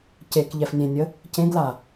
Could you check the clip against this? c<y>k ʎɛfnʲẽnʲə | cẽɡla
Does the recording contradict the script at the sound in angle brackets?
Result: yes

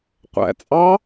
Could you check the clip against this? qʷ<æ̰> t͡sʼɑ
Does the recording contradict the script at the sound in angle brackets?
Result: no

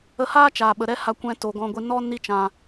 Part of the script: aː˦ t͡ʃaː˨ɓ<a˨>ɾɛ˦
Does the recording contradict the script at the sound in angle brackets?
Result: yes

